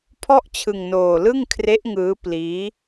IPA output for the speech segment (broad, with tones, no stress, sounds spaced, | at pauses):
pʰ ɔ˥˩ ʔ t͡ɕʰ ɯ˧ ŋ n oː˧ l ɯ˥˩ ŋ kʰ r e˦˥ ʔ ŋ ɯː˦˥ p l iː˦˥